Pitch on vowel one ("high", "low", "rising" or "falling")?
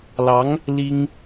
rising